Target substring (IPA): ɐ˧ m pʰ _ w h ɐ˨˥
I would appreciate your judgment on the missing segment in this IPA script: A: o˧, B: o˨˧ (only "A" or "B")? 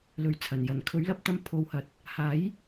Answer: B